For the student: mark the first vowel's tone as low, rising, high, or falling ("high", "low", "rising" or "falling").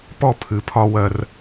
falling